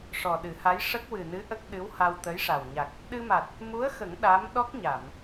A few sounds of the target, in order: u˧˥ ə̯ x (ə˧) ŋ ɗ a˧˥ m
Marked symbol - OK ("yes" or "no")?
no